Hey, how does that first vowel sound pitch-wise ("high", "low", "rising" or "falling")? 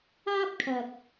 high